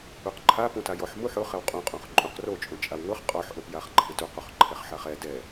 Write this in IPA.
u q ǃʰ a p ũ t a j ɔ ħ m u ħ ʊ χ ɛ w qʼ ũ qʼ õ χ ǃʼ ũ q r o t͡ʃʼ ũ t͡ʃʼ a w ŋ ʊ χ qʼ ɔ ħ ʔ o p j a χ ǃʰ ɪ t u q u χ ǃʰ ɛ χ ħ a χ ɛ d ɛ

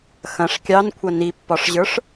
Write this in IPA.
x ɐ̃ ʂ kʲ ɑ n kʷʰ ɐ n i pː ɒ ʂ ʑ ə˞ ʂ

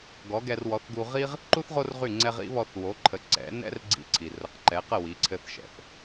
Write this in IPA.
ɡ ɔ˩˥ ɡ ɛ˧ r w ɔ˩˥ θ ɡ u˧ ʁ i˥ ʁ | ǃ u˥ θ ʁ o˥ r ʁ y˥˩ ŋ͡ǀ ɛ˧ ʁ ḭ˩˥ β ɔ˧ θ w o˩˥ ǃʰ ə˩˥ ǀ ɛ̰˩˥ n ɛ̰˥ r ɡ͡ǀ ḭ˧ ǀʰ i˩ r ə˩˥ q ǃ ɛ˩˥ q ə˥˩ w i˩˥ ǀʰ ɘ˧ θ ʃ ɛ̰˩ θ

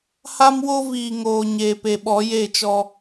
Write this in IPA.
h a˦ m w o˦ v iː˨ ŋ oː˨ ɲ eː˨ p e˨ ɓ ɔ˨˦ j e˦˨ t͡ʃ ɔ˦

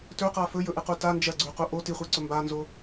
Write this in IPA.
t ɵ q a f ɵ j ɵ ʔ ɨ q u t a n d͡ʒ ɐ ɡ͡ǀ ʉ q u ʔ o t i χʷ i ǀ ɵ m b a n z o

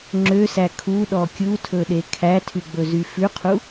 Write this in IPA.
ŋ͡ǁ ø s æ kʰ u ɗ ɔ kʲ u tʰ ɵ ɗ e kʰ æ tʰ y ɡ͡b ɵ z y f ʉ qʰ u

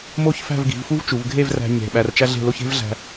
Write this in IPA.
m o˥˧ ç f æ̤˥˧ v ɡ i̤˩˧ v f u˥ v t͡ʃ u˩˧ v ɡʱ e˥˧ v r æ̤˧ ɲ e̤˧˩ ɓ æ˧ r t͡ʃ æ˥ ɮ e̤˥˧ l o˥ ç e̤˥ v ɮ æ̤˧

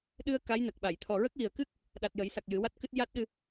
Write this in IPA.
ɗ ɨ˧ ə̯ k a˧˥ j n ə˨˩ k̚ ɓ a˨˩˨ j t̪ʰ ɔ˨˩ ɹ ə˦˥ k̚ w i˨˩ ə̯ k ɨ˦˥ k̚ | ɗ a˨˩ t̚ j ə˨˩˦ j s a˨˩ k̚ j ɨ˨˩˦ w a˦˥ t̚ k ɨ˦˥ t̚ j a˦˥ t̚ ɗ ɨ˧

